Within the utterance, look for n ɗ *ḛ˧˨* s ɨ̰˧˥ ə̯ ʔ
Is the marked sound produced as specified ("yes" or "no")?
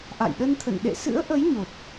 yes